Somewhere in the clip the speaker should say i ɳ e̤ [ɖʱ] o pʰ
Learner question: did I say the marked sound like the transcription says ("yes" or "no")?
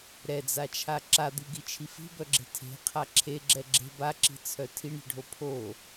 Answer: yes